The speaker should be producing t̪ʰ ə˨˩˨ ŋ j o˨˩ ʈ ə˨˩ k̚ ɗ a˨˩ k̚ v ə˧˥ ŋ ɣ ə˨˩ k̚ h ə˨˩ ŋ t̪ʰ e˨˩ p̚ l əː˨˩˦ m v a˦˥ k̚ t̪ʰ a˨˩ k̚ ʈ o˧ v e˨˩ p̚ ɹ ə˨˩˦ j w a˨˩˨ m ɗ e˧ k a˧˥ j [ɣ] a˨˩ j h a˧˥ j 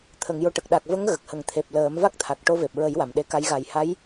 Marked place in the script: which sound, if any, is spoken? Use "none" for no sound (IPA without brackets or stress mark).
ɣ